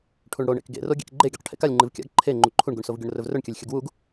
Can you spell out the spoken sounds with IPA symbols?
ʈʰ u ɳ ɽ o ɳ ḛ k ɡ ḛ r o ɡʲ ḛ k ɡ͡ǃ e ɡʲ o q ʈʰ ḛ k a lʲ ŋ͡ǃ ɨ v kʲ a̰ ɡ ǃʰ e ŋ͡ǃ u ǃʰ u ɳ ɡ u ɳ s o v ɡʲ o ɳ r ɵ v r ɵ ɳ kʲ ɐ lʲ xʲ ɐ ɡ w u ɡ

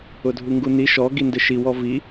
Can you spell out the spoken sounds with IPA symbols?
ʊ dʱ u ŋ ɡ u n i ʃ ɔ ɡ i n d ɪ ʃ i w ɔ v i

